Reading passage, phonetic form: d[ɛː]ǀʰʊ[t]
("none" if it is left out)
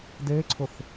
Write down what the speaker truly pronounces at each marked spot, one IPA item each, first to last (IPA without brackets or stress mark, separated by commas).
eː, θ